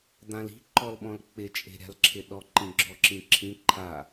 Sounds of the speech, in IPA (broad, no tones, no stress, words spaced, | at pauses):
d̪ãli̤ ǃɔlɓɔ̃lk͡pɪ t͡ʃʼe̤ɾʲa̤lǁʰɪɗɔ ǃĩɡ͡ǁɔǁĩǁʰĩ ǃʰa